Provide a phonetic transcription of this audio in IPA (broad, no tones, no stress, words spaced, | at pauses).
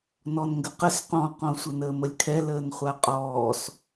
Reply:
nɔnŋɡəqəs qɔ̃qɔ̃ sʷɘnəːməlʲkʰɛ ləːnχʷaqʼɔːs